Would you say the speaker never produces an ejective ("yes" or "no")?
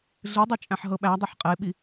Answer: no